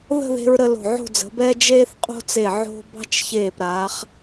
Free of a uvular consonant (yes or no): no